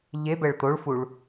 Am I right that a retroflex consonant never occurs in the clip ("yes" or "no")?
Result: no